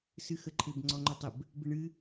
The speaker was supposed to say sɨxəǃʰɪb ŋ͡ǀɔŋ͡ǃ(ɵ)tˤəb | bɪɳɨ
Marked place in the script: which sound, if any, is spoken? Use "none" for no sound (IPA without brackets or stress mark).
ɵ